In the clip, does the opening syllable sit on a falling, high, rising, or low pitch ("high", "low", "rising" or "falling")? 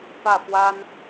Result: falling